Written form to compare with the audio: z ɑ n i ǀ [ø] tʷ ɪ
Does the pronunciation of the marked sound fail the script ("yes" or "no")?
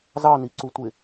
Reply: yes